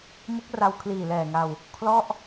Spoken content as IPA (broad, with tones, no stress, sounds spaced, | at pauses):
m ɯ˦˥ k̚ r a˧ w kʰ l iː˨˩ l ɛː˨˩ ŋ a˧ w | kʰ l ɔ˥˩ ʔ